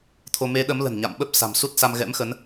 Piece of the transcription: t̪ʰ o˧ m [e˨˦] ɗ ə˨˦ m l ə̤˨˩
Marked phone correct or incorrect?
correct